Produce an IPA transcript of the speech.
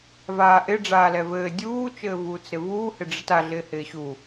v aː ʔ ɪ ɖ͡ʐ aː l ɛ v ɘː dʲ uː t͡ʃ ɘː v uː t͡s ɾ ɪ v uː h ɪ ɖ͡ʐ ɘ t a ɮ ɪː h ɪː ɕ u

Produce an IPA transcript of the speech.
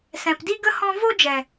s ɛ̃˨ p d i˦ ɡ ə˦ h ɔ̃˦ v o˦ d͡ʒ ɛ˨

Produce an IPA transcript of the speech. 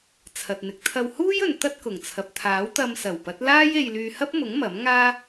t͡sʰ ɐ˨ t̚ n̪ ɪ˨ k̚ t̪ʰ ɐ˧ w h uː˥ j ɵ˨ n t̪ ɐ˥ t̚ k ʊ˨˩ ŋ t͡sʰ ɐ˨ p̚ t̪ʰ aː˨˥ w t̪ ɐ˧ m s ɐ˨˩ w p ɐ˨˥ t̚ l aː˥ j e˧ j l yː˧ h ɐ˥ p̚ m ʊ˨˥ ŋ m ɐ˨˥ m ŋ aː˥

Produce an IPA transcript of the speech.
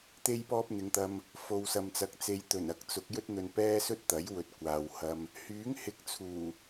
t̪ e˥ j p ɔː˥ p̚ n̪ ɪ˨˧ ŋ t̪ ɐ˧ m | f o˨ w s ɐ˨ m t͡s ɐ˨˥ k̚ t͡s e˧ j t̪ ɵ˨˩ n ɐ˨˥ k̚ t͡s ʊ˨˥ k̚ j ɵ˥ t̚ n̪ ɵ˧ n p ɛː˥ s ɵ˥ t̚ t̪ ɐ˨˥ j w ɵ˨˥ t̚ kʷ aː˨ w h ɐ˧ m | h yː˨˥ ŋ h ɪ˨˥ k̚ t͡sʰ uː˨˩

